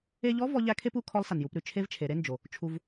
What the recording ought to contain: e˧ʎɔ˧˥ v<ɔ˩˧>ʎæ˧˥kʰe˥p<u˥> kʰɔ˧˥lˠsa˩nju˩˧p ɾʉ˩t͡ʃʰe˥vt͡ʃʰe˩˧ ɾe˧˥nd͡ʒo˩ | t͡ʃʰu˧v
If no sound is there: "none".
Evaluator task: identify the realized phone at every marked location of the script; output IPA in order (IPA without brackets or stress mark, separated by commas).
ɔ˧˥, u˥